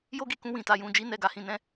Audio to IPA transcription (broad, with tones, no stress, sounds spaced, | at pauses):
j o˦ ɡ i˧ k ũ˧ w ĩ˨ t a˨˦ j ũ˧ d͡ʒ i˦ n ɛ˦˨ ɡ a˨˦ h ĩ˧ n ɛ̃˦